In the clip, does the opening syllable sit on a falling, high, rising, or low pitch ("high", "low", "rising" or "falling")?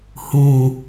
low